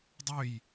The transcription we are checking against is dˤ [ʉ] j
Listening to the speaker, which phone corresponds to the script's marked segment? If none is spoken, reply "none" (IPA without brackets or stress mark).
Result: ø